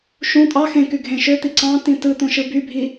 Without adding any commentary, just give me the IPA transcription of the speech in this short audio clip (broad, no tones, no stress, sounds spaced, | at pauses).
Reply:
ʃ ũ tʼ ɑ x ẽ k y ɡʱ ẽ ʃ ø t̪ i ǀ ɑ̃ t ĩ t ɯ t̪ õ ʃ ɯ b y bʱ i